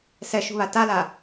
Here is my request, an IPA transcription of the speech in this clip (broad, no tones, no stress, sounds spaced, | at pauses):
s ɛ ʃ ṳ β a t a l a